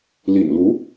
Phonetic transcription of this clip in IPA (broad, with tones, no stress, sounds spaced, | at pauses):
l ḭ˨˩ n l u˧˥